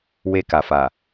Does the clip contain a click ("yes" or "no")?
no